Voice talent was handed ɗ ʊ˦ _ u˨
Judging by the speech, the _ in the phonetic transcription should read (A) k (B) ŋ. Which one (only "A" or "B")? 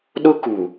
A